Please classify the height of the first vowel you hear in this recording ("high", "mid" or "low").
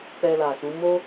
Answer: mid